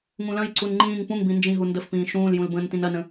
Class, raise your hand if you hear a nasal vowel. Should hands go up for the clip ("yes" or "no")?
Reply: yes